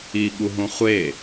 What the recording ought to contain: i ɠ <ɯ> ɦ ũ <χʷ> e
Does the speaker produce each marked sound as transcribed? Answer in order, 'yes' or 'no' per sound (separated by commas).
no, yes